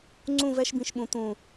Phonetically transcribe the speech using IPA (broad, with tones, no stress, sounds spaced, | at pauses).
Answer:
ŋ͡ǀ ũ˦˨ v ɛ˦ ʃ b ĩ˨ ʃ ɓ ũ˨ t̪ ũ˨